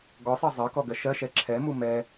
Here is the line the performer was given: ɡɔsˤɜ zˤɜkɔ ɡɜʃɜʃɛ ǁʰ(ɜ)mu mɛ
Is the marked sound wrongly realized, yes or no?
yes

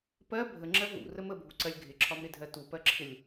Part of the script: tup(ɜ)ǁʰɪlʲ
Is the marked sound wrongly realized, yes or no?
no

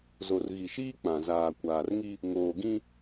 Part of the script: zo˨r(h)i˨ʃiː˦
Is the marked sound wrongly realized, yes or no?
yes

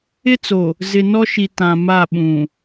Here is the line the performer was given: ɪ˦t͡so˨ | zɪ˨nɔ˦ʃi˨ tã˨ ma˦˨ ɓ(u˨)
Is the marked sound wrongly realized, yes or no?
yes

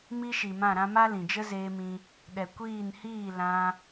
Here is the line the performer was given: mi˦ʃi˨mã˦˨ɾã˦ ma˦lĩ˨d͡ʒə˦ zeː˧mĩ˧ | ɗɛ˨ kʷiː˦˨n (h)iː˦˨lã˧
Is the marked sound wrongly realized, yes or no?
no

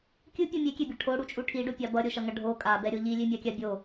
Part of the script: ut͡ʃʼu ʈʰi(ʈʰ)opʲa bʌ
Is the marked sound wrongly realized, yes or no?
yes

